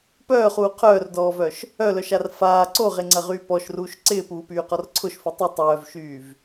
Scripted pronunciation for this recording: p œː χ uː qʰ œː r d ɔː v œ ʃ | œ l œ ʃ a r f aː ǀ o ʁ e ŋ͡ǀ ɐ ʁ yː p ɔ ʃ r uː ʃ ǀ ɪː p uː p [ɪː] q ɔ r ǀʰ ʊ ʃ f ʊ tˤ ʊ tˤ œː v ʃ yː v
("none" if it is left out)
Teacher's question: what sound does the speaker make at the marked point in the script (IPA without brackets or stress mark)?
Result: yː